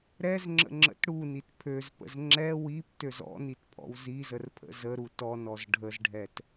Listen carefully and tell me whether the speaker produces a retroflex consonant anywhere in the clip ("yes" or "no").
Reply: yes